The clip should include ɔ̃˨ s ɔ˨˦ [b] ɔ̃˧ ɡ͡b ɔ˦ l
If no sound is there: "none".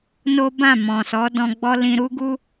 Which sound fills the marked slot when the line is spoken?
d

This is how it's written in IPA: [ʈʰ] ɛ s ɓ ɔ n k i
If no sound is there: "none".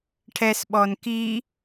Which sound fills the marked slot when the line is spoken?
ʈʰ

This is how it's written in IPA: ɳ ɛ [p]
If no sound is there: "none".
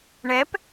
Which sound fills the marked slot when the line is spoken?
p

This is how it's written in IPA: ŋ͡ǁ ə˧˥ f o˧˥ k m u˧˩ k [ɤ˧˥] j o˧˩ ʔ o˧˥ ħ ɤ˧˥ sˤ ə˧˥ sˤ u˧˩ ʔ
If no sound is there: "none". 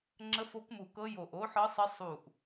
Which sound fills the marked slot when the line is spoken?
ɤ˧˥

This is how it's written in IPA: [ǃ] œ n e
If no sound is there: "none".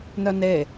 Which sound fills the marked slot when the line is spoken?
n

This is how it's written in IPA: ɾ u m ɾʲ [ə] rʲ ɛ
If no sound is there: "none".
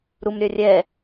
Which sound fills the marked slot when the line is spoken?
œ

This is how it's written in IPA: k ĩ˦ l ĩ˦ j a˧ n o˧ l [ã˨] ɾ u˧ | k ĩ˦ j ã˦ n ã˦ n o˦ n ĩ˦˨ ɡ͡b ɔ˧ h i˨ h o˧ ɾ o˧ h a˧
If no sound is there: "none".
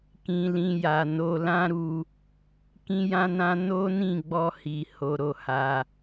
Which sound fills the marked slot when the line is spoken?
ã˦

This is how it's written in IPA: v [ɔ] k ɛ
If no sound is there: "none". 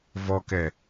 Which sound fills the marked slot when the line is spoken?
ɔ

